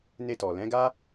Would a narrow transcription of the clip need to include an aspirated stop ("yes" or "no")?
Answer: no